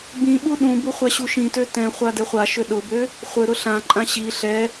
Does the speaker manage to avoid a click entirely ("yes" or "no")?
no